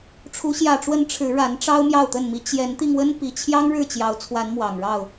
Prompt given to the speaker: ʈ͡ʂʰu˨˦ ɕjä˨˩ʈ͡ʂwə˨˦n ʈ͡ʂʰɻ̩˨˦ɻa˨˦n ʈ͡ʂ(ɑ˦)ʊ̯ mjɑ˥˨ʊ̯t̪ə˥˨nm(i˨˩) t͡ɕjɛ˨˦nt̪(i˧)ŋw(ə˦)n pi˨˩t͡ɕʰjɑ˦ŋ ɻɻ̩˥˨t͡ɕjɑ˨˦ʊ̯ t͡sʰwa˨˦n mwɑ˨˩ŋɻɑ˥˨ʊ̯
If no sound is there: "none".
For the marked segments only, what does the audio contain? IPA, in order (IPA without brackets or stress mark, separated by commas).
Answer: ɑ˦, i˦, i˧, ə˦